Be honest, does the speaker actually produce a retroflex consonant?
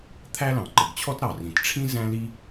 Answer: yes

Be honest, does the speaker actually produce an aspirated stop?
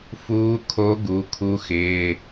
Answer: yes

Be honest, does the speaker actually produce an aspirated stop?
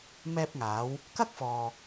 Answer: no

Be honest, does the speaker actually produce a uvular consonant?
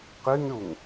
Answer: yes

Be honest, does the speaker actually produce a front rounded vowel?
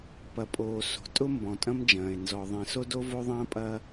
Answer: no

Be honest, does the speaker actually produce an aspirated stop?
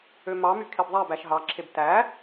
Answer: yes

